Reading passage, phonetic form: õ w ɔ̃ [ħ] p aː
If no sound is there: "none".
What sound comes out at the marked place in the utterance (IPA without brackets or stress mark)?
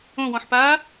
ħ